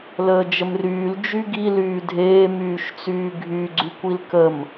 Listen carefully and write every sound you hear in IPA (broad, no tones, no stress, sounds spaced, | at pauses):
l əː d͡ʒ ə m r yː l d͡ʒ y ɡ i l yː dʱ eː m yː ʃ t͡s yː ɡʱ y ɡ͡ǀ y kʷ i l k ə m